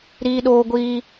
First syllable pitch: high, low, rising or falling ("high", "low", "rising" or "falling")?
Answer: high